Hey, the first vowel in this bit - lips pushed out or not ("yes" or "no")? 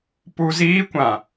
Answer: yes